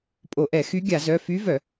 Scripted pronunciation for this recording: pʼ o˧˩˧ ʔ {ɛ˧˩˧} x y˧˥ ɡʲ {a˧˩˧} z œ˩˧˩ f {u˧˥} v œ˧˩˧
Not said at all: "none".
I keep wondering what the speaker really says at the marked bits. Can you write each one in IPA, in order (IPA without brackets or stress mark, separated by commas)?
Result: ɛ˧˩˧, a˧˩˧, y˧˥